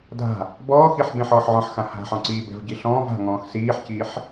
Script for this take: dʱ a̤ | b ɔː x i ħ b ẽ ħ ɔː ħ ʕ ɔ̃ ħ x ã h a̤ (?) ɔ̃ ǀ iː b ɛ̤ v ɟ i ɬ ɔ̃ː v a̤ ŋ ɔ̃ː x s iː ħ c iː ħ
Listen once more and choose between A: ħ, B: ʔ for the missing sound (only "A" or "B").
A